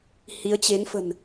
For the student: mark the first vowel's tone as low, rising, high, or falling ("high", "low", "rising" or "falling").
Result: rising